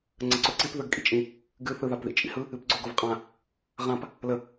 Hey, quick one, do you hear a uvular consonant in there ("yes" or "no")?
yes